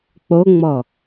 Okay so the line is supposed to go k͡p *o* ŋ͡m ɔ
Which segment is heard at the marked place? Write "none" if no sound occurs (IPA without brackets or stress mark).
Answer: o